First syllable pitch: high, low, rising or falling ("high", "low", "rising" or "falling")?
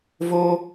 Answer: high